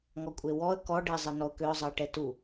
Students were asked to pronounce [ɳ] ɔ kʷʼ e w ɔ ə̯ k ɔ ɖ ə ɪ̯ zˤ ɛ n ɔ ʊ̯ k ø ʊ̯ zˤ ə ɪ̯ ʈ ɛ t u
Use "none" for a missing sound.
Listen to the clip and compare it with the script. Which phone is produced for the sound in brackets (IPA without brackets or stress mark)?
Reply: ŋ